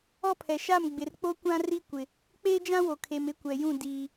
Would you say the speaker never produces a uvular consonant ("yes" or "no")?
yes